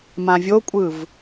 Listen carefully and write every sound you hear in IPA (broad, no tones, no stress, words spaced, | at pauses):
mãvʲokʷʼɯv